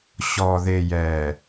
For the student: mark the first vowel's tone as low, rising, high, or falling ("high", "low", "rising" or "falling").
low